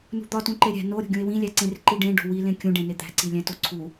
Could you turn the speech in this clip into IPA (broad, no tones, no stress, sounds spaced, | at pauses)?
n ṳ d̪ ɒ t ũ ǃ e ɾʲ æ̤ n o ɾʲ o̤ ɡʲ ũ e̯ w ĩ lʲ æ ǀ ẽ r ǃ i ɖ ẽ ɖ o̤ w i l ẽ kʲ ũ ɖ ẽ n e d̪ æ̤ ǀ i lʲ æ̃ t o ǀʰ u